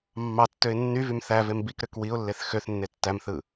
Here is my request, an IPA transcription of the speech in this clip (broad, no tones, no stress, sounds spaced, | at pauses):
mː ɑ tː ø ɪ̯ nː y v y m θ æ v e m b i k ɾ ø k w i ʊ̯ lː e θ x ø θ nː e tː æ m θ ɯ